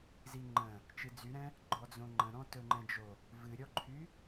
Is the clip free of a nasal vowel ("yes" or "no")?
no